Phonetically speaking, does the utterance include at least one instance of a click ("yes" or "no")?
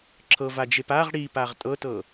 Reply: yes